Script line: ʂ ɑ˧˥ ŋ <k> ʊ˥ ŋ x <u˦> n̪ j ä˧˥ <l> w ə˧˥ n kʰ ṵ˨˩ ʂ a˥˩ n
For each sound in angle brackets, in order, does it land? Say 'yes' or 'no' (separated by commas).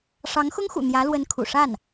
no, no, yes